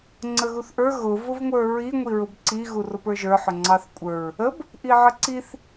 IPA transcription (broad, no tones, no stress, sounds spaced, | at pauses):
ŋ͡ǀ ə ɣ u θ ʔ ə˞ ɣ ʊ v ʊ v ŋʷ ə˞ ɹ i ŋʷ i ɹ ʊ b ǀ i ɣ u r ʊ p ə˞ ʒ ə˞ ħ ʊ ŋ͡ǀ ɑ θ kʷʼ ə˞ ɹ | ə b | ʔ i ʕ ə ǀ i θ